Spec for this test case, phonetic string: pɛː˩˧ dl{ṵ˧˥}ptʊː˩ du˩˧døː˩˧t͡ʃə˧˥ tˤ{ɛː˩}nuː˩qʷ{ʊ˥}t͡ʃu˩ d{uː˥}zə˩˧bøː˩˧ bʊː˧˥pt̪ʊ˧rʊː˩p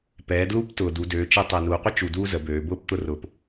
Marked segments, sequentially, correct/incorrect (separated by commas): incorrect, incorrect, incorrect, correct